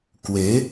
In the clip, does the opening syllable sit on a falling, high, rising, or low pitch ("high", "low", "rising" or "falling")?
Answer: rising